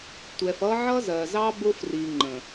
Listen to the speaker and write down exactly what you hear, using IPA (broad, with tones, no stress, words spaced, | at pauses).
tʷɛ˨fʌ˦ ʕʌ˦zɜ˨zɑ˦ bʊ˦fri˨ŋ͡ǃə̃˨